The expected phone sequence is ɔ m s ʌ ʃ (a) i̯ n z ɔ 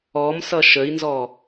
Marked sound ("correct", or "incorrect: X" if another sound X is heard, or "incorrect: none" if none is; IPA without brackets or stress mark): incorrect: ə